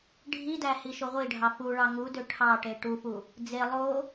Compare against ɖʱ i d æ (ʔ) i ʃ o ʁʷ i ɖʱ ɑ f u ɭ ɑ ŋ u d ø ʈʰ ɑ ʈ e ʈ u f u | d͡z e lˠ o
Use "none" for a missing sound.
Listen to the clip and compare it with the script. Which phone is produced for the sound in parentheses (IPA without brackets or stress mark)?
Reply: h